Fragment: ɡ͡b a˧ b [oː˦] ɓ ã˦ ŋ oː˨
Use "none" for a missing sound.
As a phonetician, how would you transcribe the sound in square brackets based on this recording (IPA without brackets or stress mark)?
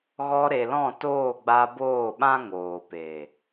oː˦˨